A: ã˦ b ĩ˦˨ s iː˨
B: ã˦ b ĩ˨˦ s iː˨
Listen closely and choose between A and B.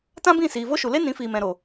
A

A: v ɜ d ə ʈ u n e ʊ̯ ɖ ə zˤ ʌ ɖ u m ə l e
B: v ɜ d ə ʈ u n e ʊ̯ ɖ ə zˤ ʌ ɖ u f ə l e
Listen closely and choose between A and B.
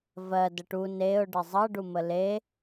A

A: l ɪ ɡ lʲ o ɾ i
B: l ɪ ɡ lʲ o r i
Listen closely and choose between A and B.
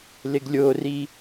B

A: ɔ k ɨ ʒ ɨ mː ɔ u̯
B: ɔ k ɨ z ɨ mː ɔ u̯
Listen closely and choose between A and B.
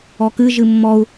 A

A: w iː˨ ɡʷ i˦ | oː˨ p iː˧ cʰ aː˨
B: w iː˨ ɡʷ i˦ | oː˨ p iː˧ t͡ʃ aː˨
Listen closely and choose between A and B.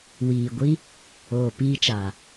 B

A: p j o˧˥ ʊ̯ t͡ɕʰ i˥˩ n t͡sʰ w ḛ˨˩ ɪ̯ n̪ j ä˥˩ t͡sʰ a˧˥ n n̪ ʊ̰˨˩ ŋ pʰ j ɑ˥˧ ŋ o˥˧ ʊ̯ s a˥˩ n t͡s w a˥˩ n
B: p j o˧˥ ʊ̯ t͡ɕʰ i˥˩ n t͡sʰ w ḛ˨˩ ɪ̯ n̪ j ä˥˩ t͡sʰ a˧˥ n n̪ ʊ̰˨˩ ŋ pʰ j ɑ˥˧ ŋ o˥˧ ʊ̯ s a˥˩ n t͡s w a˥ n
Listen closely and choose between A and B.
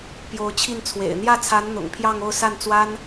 B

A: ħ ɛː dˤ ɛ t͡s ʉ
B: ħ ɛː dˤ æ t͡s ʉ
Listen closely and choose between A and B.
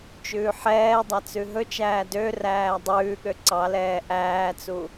B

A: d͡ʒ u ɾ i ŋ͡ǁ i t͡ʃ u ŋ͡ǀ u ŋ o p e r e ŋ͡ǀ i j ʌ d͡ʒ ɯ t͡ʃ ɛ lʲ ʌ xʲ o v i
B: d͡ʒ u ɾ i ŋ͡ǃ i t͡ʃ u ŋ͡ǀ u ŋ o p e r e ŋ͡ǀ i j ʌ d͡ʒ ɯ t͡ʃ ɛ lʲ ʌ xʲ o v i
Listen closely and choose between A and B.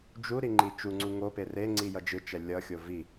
B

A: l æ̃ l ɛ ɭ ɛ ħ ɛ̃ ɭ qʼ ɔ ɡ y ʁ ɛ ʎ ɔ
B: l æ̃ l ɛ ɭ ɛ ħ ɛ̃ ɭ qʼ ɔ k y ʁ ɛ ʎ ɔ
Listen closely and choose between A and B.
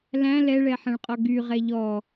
A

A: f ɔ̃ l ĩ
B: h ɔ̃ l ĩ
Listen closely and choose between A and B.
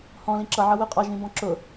B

